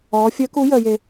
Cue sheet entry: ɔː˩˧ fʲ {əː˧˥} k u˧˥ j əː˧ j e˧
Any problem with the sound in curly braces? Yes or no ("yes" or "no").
no